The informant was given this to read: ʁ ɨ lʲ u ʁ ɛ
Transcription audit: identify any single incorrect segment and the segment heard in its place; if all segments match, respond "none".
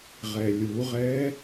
ɨ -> ɛ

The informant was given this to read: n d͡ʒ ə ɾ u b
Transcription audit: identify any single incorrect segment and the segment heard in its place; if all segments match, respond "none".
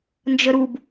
none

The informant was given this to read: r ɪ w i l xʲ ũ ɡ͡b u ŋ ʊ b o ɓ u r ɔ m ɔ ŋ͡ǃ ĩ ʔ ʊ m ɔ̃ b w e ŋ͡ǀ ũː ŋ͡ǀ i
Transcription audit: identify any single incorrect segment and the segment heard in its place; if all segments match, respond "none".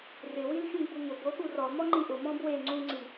none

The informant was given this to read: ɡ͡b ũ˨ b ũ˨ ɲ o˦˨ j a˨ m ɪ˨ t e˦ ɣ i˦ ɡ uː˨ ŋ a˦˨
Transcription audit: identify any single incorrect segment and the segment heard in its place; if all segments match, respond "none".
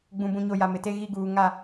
none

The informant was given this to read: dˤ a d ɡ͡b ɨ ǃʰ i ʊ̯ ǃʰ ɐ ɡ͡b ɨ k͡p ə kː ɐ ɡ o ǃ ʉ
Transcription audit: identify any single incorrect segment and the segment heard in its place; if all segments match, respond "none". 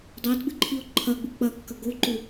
ə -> ɐ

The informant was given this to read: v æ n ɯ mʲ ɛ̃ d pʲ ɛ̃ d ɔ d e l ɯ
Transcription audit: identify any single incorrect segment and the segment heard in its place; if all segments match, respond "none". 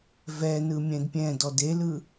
æ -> ɛ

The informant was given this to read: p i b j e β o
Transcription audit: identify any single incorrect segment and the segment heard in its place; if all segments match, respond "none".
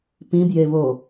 i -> ĩ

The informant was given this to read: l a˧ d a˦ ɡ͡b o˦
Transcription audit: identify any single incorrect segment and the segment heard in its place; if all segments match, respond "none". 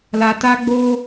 d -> t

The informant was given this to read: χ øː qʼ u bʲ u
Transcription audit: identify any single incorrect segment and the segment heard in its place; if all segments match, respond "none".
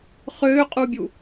none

